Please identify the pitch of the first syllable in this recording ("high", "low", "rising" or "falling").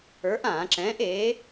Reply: rising